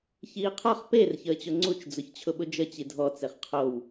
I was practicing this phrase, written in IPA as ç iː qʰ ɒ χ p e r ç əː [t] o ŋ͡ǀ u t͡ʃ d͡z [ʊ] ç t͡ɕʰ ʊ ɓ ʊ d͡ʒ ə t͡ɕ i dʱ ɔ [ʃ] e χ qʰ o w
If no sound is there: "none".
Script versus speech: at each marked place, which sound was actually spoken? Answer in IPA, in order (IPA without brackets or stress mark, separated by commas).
t͡ɕ, ʊ, t͡s